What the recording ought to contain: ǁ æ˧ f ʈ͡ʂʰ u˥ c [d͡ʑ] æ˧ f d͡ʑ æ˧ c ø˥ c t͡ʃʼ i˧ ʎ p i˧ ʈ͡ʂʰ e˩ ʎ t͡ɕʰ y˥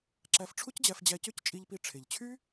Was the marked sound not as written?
no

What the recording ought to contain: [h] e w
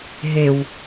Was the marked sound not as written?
yes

